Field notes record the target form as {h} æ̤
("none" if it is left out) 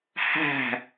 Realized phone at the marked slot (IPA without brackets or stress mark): h